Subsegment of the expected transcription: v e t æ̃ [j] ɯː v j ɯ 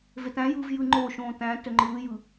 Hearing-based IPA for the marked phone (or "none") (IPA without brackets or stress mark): j